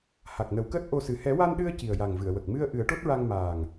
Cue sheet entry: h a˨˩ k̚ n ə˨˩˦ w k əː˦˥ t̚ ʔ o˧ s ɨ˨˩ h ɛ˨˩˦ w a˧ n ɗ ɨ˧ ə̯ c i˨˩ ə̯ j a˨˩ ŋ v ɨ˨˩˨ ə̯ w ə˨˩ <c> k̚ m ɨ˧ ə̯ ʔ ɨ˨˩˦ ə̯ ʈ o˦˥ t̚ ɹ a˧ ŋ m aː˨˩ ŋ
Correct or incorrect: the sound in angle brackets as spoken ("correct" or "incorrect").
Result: incorrect